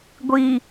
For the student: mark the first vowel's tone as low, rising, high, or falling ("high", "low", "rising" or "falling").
low